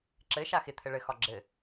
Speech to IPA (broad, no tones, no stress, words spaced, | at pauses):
ǁɘʃa xɪt̪ʰɘ ɭɘxɒ ɡ͡ǁɘ